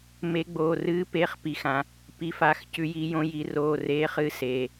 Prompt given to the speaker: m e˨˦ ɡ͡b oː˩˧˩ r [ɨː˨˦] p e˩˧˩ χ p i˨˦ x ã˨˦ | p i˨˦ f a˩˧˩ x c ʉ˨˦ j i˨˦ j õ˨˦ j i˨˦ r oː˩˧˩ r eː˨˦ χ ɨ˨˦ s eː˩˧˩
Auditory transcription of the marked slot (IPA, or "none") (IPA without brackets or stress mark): ɨː˨˦